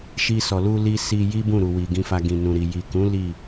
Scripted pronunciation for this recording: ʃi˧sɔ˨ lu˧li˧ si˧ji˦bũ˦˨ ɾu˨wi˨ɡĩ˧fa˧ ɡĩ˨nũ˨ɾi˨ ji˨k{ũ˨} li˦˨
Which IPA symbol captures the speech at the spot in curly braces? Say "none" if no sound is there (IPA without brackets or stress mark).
ũ˨˦